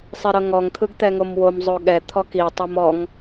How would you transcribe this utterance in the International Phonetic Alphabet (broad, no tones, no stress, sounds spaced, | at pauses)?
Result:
sˤ i ɾ ɤ ŋ ɔ ŋ t̪ʰ ɯ ɡ t̪ ɛ ŋ o m w o m zˤ o ɠ ɛ t̪ʰ ɔ k i tˤ ɛ m ɔ ŋ